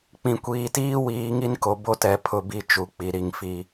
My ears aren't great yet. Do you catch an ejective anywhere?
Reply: no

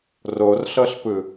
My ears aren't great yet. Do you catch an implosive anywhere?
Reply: no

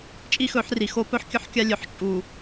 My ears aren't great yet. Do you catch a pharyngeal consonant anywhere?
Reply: yes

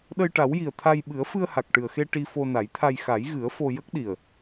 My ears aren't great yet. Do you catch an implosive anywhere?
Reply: yes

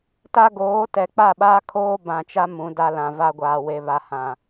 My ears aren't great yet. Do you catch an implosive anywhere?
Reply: yes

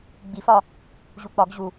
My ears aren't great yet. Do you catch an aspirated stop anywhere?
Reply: no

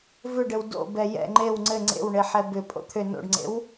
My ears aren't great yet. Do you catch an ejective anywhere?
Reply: yes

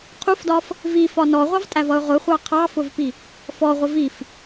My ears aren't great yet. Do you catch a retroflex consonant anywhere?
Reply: no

